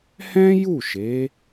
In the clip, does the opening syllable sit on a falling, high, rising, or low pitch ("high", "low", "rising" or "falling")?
high